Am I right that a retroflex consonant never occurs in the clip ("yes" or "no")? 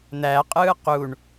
no